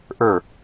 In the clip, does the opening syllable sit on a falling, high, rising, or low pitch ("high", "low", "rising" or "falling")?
falling